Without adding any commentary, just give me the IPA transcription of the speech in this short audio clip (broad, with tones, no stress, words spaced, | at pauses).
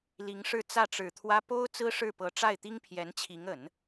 li˧˥ŋʂɻ̩˥˧ t͡sä˥˩ʈ͡ʂɻ̩˨˩t̪ʰwä˥ po˥ʊ̯ t͡sɹ̩˥ʂɻ̩˥˩pɤ˧˥ ʈ͡ʂa˥˩ɪ̯t̪i˥ŋpʰjɛ˧˥nt͡ɕʰi˧˥ŋ ə˨˩˦n